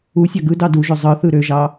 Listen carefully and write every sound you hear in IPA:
u sʲ ɑ ɡ ɯ d ɑ d u ʒ ø zˤ ɯ θ ɯ ɾ ø ʒ ɑ

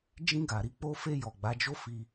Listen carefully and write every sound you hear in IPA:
d͡ʒ ĩ˧ ɡ a˨ ɾ i˧ k͡p o˧ f e˧ j ɔ˨ ɡ͡b a˨˦ d͡ʒ o˦ f i˧

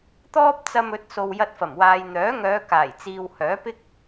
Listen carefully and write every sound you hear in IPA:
t̪ ɔː˥ p̚ t͡s ɐ˧ m ɵ˨˥ t̚ s o˨ w j ɐ˧ t̚ f ɐ˨˩ m w aː˨ j n̪ œː˨˥ ŋ œː˨˧ k aː˨˩ j t͡s iː˨ w h œː˨˥ p ɪ˥ k̚

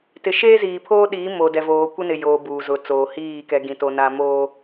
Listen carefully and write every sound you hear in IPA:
t ɪ˨ ʃ eː˦ z iː˨ pʰ oː˦ ɗ iː˨˦ m o˨ d ɛ˨ v oː˨ kʷ e˦ n ɪ˨ j oː˨ b uː˨ z ʊ˨ t͡s oː˨ h iː˦˨ k ɛ˨ ɡ ĩ˨ t o˨ n a˨ m oː˨

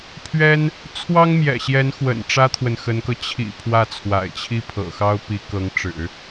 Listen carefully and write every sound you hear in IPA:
pʰ ɥ ɛ˥ n | t͡sʰ w ɑ˥ ŋ m j ɛ̰˨˩ ɕ j ɛ˧˥ n x w ə̰˨˩ n ʈ͡ʂ ä˥ t̪ʰ w ə˨ n x ə˧˥ n k ɤ˧ t͡ɕʰ ḭ˨˩ pʰ w ä˥˩ t͡sʰ w a̰˨˩ ɪ̯ t͡ɕʰ i˥ pʰ ɤ̰˨˩ x ɑ˥ ʊ̯ p i˧˥ k ɤ˧˥ ŋ ʈ͡ʂ ɻ̩˨˩˦

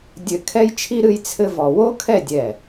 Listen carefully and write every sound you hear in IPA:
dʲ ɘ˥˧ kʰ ɛ˥ j t͡ʃʰ i˥ ɾ ɨ˥ j t͡sʰ ɘ˥ v ɔ˧ w o˥ kʰ ɛ˥˧ dʲ ɛ˧˩

